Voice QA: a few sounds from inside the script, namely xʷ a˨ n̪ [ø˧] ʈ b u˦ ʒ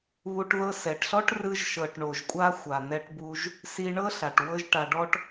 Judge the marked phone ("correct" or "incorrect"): incorrect